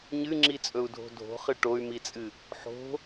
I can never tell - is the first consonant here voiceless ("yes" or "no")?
no